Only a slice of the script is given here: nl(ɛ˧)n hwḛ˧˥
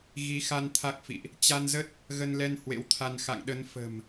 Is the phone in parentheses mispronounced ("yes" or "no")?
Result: no